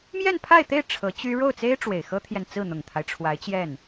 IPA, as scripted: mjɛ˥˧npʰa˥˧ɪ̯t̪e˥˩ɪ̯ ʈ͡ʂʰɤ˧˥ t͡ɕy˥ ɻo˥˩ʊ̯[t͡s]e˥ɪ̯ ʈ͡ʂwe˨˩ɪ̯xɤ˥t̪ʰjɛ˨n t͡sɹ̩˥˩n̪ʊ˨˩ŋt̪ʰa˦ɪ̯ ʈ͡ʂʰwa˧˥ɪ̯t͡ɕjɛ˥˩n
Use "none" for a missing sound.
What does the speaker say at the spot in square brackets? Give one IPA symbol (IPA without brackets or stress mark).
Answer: t͡s